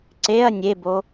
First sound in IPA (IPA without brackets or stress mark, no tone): ǀ